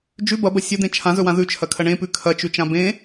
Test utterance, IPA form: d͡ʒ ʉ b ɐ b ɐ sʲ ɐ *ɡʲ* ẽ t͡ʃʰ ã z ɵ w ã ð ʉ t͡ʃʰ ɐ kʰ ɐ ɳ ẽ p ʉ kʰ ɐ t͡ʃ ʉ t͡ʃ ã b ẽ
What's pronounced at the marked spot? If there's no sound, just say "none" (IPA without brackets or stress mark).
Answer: d̪